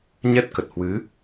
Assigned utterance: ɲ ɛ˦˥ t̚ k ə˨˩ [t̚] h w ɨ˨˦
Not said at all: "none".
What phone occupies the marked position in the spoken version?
t̚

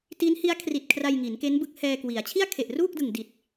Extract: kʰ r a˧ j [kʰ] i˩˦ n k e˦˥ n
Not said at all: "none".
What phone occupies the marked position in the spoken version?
ŋ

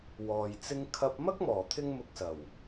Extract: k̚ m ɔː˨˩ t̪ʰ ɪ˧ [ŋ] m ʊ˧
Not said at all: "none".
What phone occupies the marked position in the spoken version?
ŋ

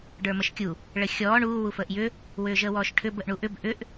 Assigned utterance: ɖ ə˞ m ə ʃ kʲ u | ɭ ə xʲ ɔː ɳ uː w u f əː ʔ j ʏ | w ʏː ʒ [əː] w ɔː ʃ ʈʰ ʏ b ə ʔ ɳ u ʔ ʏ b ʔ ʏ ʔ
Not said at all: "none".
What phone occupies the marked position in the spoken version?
əː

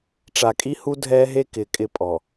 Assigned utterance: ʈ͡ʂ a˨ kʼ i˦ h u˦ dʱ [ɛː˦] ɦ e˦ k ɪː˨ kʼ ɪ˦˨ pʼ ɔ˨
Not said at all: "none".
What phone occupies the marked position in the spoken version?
ɛː˦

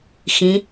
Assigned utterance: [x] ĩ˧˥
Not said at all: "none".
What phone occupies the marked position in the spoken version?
x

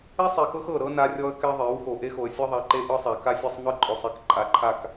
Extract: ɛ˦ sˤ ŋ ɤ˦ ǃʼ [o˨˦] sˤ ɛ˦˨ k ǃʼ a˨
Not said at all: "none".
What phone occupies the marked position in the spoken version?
o˨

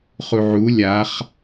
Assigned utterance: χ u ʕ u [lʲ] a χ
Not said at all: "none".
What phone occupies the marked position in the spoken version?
lʲ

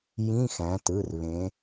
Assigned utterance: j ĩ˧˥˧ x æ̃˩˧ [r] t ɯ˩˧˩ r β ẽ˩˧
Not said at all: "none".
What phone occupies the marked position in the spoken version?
none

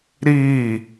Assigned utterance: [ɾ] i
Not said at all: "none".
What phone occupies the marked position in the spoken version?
ɾ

